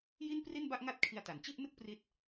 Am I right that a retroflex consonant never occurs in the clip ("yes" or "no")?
yes